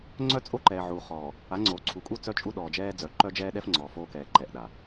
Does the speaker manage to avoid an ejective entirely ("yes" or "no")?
no